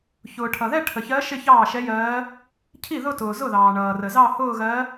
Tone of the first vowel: low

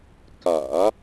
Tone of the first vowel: low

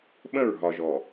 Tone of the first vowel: falling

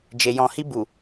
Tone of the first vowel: low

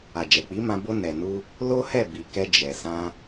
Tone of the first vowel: low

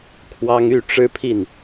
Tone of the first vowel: high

